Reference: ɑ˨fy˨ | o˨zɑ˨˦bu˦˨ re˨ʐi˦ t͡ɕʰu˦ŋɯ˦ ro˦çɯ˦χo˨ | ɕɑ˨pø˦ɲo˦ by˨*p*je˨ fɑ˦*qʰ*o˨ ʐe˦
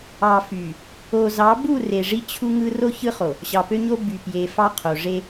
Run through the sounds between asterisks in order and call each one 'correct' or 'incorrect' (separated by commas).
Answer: correct, correct